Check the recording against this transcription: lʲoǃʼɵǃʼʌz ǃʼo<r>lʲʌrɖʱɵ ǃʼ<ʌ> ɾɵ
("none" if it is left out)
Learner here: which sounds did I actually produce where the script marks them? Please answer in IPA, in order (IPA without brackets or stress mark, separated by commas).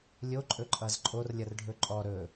r, ɔ